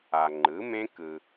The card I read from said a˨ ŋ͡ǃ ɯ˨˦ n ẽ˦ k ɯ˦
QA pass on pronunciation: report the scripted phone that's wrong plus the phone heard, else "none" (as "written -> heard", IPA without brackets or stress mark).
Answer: n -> m